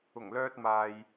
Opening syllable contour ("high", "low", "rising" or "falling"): low